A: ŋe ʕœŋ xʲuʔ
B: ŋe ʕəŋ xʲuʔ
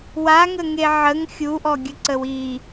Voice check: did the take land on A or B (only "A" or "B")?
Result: B